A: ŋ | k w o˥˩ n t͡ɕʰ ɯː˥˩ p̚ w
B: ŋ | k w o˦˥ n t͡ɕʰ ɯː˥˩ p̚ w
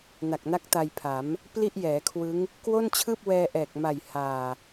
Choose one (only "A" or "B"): A